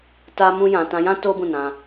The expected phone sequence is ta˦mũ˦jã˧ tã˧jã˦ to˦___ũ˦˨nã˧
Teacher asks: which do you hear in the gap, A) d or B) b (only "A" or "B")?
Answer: B